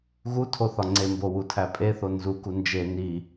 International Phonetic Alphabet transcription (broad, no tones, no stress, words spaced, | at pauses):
ɣutʰo θɒŋ͡ǀembo wutʰæpʼeθo nzuku nd͡ʒe ni